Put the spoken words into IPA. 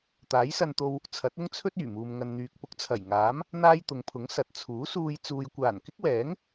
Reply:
t̪ aː˨˥ j s ɐ˧ n t̪ o˧ w | t͡sʰ ɐ˨˥ t̚ ʊ˥ ŋ t͡sʰ ɵ˥ t̚ yː˨˩ m uː˨ m ŋ ɐ˨ n n̪ yː˨ k̚ p ʊ˧ k̚ t͡sʰ ɐ˨˩ j ŋ aː˨˥ m | n̪ aː˥ j t̪ ʊ˨˧ ŋ pʰ ʊ˨˥ ŋ s ɐ˨˥ t̚ t͡sʰ uː˨˥ s uː˧ j t͡s uː˨ j kʷ aː˨˩ n k ɪ˥ k̚ w ɛː˨˥ ŋ

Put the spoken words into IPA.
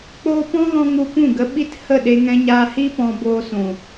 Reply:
k͡p oː˦ p ɔ̃˦ ɣ ɔ̃˧ ŋ u˧ p ũ˦˨ ɡ ə˧ ɓ i˦ t h ə˦˨ ɗ e˧ ŋ ɛ̃˧ ɲ aː˧ h i˦ p ɔ̃˧ b oː˧ s ũ˨

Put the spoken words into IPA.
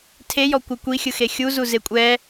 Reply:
tʰ e j ɔ kʷ ɯ kʷ i xʲ ɯ x e xʲ u z u z e kʷʼ ɛ

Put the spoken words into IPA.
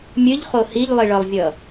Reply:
mʲ ɨ ʎ χ o h i ʎ lˠ i ɭ ʌ lˠ vʲ ʌ

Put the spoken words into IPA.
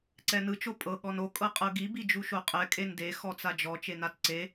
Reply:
ǀ ɛ n ɯ t͡ʃ o pʼ ɤ ɠ ɔ n o kʼ ɤ qʼ ɤ ɡ i b i d͡ʒ u ʃ o qʼ ɛ kʼ e n d e x ɔ t͡s a d͡ʒ ɔ t͡ʃ e n a t ǀ e

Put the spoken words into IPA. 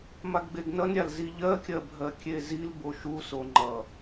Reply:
m a ɡ ɡ͡b e ɡ n ʌ n ɾʲ a l z i ʎ ɜ kʲ ɜ bʱ ɜ kʲ e z i l b o ʃ u s o ŋ͡ǃ ʌ

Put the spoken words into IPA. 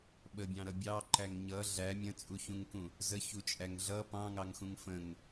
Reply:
ɓ ə bʲ ɑ̃ ɾ ʌ bʲ ɑ ǃ æ ŋ ɲ ʌ ɮ æ mʲ ə̃ t͡sʼ u ç ũ ŋ k ũ | z ə ç u t͡ʃʼ æ ŋ ɮ ʌ p ɑ̃ ŋ ɑ ŋ x ũ ŋ f ə̃ ŋ

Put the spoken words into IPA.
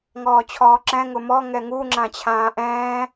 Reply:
ŋ ɔː t͡ɕʰ ɔː ǁ ɛ̃ ŋ ʊ m ɔ ŋ ɛ ŋ u ŋ͡ǁ ã t͡ɕʰ ãː ʔ ɛ̃ː

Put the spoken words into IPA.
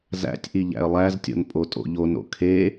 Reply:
z æ̰ tʲ ʔ i ʎ æ̰ ə̯ lˠ æ z tʲ o̰ n pʼ o tʼ o̰ ʎ o n o̰ kʰ e

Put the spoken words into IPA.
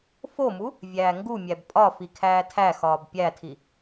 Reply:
f o m u | vʲ æː ŋ ɡ u mʲ æ b pʼ ɒ f i kʰ æː tʰ æ x ɒː b pʲ æ tʰ i

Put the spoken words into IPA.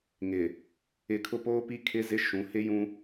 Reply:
ŋ ɪ˨ | ɪ˨ kʰ ʊ˦ p oː˦ p i˦ kʰ ɪ˦ z ɪ˦ ʃ ũ˨˦ h ɪ˦ j ũ˦

